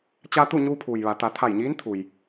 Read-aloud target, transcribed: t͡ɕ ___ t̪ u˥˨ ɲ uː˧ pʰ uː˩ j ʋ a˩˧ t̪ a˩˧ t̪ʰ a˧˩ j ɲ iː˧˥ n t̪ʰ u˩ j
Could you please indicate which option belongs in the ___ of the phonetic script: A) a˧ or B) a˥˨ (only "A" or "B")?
A